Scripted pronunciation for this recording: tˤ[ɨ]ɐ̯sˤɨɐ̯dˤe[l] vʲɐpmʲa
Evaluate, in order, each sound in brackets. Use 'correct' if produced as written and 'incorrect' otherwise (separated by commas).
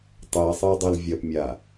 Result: correct, correct